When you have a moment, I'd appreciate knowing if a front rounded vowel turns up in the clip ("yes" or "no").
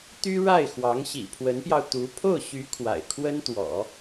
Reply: yes